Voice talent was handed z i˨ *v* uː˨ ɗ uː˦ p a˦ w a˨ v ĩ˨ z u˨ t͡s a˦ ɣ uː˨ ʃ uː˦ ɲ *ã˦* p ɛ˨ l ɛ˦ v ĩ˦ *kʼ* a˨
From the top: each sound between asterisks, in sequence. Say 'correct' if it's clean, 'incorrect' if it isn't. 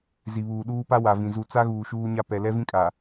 incorrect, incorrect, correct

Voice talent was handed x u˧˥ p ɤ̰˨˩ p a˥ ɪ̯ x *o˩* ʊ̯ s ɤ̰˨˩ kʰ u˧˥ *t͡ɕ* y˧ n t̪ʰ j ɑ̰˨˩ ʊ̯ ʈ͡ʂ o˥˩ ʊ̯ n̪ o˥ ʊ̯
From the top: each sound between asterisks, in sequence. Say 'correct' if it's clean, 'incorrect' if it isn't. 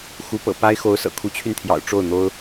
incorrect, incorrect

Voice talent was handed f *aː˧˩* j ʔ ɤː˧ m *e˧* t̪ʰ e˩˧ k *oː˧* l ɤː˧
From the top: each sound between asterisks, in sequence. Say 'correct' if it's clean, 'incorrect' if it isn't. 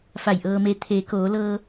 incorrect, correct, incorrect

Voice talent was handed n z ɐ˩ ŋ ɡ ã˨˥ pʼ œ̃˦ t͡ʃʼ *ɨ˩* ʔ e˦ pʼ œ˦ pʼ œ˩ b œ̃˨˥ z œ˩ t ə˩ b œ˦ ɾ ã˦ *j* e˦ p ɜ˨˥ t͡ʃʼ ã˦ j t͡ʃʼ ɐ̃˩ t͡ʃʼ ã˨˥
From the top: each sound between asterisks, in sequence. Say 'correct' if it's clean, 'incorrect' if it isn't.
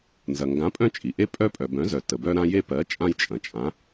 incorrect, correct

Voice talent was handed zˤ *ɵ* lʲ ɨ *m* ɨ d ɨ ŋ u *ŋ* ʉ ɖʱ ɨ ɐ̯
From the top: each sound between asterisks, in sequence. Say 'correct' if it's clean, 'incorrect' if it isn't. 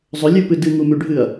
correct, incorrect, incorrect

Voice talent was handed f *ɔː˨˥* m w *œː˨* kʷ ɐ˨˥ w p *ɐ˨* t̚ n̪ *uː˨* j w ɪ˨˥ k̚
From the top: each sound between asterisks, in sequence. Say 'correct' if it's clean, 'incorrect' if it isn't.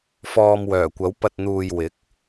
incorrect, incorrect, correct, correct

